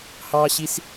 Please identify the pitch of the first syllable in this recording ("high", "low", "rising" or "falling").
high